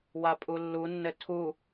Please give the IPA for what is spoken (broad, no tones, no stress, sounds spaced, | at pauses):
w a pʼ u lː u nː ɘ tʰ u